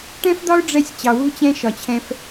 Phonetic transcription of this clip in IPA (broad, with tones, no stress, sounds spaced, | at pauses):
ʈ ɛ̃˦ f d̪ ɒ˦ ʊ̯ ɖ͡ʐ ɛ˦ sʲ t͡ɕ ɑ˨ w u˦ t͡ɕ ɛ̃˦ ʃ ɒ˨ t͡ɕʰ ɛ̃˧ f